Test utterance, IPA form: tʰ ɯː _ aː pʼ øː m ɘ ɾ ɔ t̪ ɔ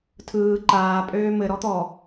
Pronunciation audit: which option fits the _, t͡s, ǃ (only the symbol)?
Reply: ǃ